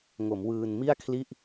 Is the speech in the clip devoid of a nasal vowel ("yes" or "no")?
yes